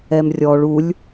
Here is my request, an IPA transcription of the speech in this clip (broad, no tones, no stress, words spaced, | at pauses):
ɛmrʲɔɭ ulʲ